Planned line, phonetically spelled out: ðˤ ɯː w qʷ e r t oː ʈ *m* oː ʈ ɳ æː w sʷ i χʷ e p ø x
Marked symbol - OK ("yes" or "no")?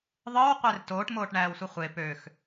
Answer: yes